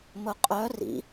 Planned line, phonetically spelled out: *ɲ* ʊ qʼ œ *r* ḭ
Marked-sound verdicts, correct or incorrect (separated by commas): incorrect, correct